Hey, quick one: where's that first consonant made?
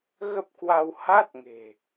velum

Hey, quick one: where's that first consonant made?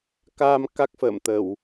velum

